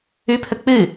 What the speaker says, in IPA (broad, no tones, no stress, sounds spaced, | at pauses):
ʉ pʰ ə k͡p ɨ